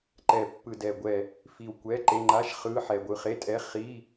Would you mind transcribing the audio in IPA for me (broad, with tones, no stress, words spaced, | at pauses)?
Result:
ǃɛ˧˩ pːɯ˧˩dɛ˧˩ ɡʷɛ˧˩ | fi˧˩wkʷɛ˧˥˧ǃe˧˥˧ ŋ͡ǃa˧˥˧ʃ χɯ˧˥˧ ħɛ˧˩ɡʷɯ˧˩χe˧˥˧tʼɛ˧˥˧ χi˧˥˧